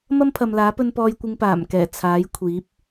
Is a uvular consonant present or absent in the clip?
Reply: absent